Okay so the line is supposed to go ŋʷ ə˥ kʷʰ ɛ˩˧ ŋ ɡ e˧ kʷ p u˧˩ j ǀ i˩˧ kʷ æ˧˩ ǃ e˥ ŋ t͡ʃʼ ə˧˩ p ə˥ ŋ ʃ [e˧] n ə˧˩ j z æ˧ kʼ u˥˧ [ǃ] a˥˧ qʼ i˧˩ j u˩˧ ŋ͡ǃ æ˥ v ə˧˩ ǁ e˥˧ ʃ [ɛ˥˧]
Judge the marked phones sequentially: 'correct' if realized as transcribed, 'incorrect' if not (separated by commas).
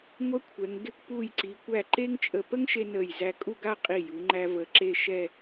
correct, incorrect, correct